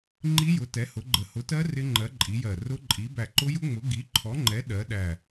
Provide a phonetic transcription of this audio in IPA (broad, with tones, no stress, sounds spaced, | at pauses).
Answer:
ŋ͡ǃ i˦˥ j ʊ˨˥ t ɛ˨˥ h ʊ˨˥ ɡ͡ǃ ə˧˩ h ʊ˨˥ t ɜ˦˥ r ɪ˦˥ ŋ͡ǃ ɜ˨˥ ǃʼ i˨˥ j ɜ˧˩ r ʊ˦˥ ǃʼ i˨˥ b æ˧˩ ǃ ʊ˦˥ j ʊ˦˥ ŋ͡m ʊ˨˥ ɡ i˨˥ ǃʰ ɔ˨˥ ŋ͡ǃ ɛ˨˥ ɗ ɜ˨˥ ɗ æ˧˩